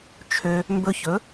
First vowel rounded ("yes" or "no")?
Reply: yes